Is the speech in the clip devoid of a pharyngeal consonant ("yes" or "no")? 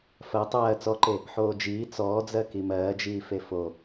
no